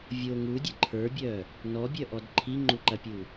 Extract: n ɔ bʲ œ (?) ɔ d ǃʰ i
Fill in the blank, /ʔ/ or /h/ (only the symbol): ʔ